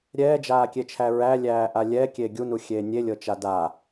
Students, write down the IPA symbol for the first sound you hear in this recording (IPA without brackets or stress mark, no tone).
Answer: ɾʲ